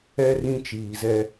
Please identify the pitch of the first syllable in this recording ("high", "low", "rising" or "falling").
high